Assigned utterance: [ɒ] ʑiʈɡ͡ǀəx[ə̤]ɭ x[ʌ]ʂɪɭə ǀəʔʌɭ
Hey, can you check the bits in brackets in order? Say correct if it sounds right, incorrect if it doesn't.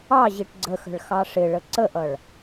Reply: incorrect, correct, incorrect

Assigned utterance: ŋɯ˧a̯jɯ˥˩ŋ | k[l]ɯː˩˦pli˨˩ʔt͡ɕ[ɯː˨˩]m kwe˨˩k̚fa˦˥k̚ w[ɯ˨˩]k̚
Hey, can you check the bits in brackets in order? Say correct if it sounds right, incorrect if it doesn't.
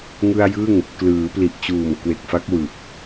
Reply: correct, incorrect, correct

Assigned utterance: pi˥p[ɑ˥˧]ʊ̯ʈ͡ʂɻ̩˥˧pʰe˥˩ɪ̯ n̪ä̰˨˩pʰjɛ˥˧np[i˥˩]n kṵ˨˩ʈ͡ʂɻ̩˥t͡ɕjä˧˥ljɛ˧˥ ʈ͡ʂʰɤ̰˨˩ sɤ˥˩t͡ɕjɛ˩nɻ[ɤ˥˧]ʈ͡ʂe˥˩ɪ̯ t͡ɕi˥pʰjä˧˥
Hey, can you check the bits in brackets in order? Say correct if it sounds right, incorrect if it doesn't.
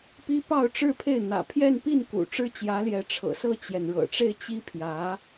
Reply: correct, correct, incorrect

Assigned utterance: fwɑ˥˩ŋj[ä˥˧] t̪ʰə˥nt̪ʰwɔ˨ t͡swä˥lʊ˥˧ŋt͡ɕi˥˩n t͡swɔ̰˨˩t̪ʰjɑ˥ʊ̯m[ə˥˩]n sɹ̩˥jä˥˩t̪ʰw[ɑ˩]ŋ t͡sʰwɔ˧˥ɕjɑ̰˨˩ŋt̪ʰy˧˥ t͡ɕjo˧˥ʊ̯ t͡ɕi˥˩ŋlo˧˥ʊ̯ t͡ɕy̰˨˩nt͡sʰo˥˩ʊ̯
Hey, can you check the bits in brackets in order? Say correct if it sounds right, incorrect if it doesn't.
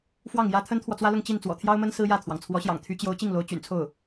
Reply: incorrect, incorrect, correct

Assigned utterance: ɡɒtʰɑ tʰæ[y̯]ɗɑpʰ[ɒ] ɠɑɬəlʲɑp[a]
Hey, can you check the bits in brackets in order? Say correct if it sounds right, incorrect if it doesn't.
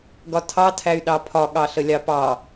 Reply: correct, correct, incorrect

